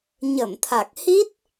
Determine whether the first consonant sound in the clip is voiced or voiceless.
voiced